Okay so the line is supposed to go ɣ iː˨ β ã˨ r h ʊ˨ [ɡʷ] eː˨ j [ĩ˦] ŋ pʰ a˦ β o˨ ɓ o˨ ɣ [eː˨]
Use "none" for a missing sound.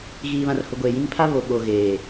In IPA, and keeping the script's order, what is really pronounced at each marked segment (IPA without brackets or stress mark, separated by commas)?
ɡʷ, ĩ˦, eː˨